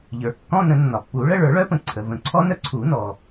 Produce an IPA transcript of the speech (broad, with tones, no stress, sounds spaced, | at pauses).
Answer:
ʎ ə˞˩ kː ɔ̃˧˥˧ n ə̃˨˩˦ nː ɒ˩ pː u˨˩˦ ɭ ə˧˥˧ ɭ ə˞˨˩˦ ɭ œ˦˥ p ə̃˩ ǀʰ ə˩ v ə̃˨˩˦ ǀʰ ɔ˦˥ n œ˩ ǀʰ u˨˩˦ n ɔ˩